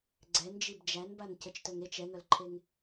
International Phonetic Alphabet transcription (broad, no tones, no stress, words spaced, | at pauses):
ɡ͡ǀɛn d͡ʒibd͡ʒænban cət͡ʃtœŋet͡ʃ ɛŋœlǃʰeŋ